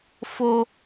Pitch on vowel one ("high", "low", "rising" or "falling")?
high